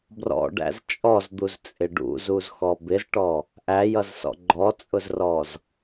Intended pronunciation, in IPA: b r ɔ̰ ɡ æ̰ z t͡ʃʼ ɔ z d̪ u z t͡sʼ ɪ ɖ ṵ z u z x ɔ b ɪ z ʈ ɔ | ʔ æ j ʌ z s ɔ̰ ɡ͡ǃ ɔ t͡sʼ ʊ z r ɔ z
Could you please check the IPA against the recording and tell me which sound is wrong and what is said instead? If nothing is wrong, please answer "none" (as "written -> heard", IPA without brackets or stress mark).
ɡ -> ɖ